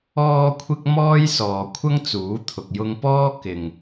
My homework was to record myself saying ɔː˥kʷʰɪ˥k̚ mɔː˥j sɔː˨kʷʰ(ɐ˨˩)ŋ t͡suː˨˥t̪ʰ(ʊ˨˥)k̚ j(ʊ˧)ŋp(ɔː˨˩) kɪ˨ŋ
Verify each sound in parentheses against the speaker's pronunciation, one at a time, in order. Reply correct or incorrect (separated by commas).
incorrect, incorrect, correct, incorrect